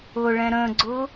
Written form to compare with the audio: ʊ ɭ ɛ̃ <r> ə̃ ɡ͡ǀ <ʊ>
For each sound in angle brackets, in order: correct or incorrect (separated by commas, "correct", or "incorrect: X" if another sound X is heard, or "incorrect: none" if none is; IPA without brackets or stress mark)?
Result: incorrect: ɾ, correct